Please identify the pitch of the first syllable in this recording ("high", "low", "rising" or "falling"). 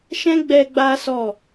high